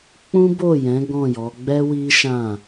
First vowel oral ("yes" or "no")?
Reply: no